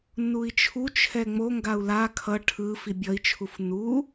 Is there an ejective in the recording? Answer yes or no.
no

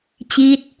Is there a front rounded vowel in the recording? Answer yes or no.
no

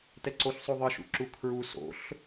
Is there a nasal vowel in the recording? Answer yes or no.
no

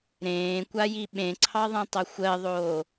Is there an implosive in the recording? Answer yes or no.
yes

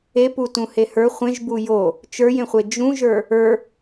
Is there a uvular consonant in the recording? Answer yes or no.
yes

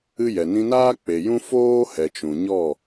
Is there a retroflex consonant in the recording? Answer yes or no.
no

